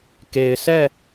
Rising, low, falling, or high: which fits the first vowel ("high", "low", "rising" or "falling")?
low